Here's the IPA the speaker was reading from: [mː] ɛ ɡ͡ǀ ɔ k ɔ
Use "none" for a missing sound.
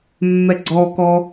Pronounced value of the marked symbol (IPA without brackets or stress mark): mː